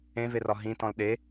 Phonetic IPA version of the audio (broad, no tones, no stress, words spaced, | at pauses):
ẽverɒ ɦĩtɔ̃l ɗe